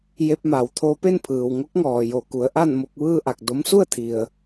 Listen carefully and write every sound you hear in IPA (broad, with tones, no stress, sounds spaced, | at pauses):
j e˧ p̚ m a˩ w t̪ʰ o˧ p e˥˨ n pʰ ɯː˩ w ŋ o˧˥ k̚ ŋ ɔː˩ j o˧˩ k u˩˧ ə̯ ʔ a˥˨ n m o˧ k̚ ʋ ɯː˥˨ ʔ a˧˩ k̚ d o˧˥ m s u˥˨ ə̯ t̪ʰ i˩ ə̯